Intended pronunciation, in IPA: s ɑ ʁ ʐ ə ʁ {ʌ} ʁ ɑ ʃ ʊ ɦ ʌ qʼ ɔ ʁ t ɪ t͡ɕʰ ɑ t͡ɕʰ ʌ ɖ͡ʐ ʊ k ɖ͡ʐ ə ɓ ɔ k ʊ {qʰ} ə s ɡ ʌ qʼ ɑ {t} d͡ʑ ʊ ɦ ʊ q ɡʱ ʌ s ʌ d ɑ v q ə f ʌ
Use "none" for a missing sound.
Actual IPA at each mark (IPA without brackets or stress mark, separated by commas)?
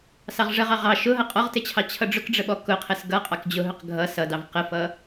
ɑ, qʰ, k